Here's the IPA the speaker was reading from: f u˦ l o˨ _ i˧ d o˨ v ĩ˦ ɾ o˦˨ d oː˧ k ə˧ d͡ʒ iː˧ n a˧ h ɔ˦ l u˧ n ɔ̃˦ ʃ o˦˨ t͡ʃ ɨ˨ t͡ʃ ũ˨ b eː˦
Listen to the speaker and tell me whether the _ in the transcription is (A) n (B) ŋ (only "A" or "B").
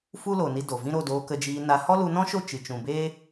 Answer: A